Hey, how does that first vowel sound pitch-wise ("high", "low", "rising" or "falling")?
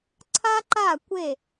high